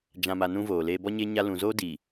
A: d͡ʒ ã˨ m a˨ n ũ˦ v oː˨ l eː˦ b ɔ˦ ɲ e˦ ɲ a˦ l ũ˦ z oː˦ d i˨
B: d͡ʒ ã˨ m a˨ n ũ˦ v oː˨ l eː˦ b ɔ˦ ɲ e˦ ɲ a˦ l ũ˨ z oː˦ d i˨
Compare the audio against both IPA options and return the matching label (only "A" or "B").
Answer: B